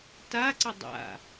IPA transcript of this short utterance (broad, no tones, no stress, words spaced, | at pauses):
taǀə dˤa̰